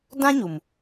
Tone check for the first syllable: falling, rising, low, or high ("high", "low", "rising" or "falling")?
high